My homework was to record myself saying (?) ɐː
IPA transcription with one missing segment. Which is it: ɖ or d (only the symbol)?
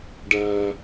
ɖ